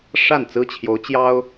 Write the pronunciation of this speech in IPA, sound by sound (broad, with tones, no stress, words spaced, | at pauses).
ʂa˥˩nt͡sɹ̩˥t͡ɕʰjo˧˥ʊ̯ t͡ɕjɑ˥ʊ̯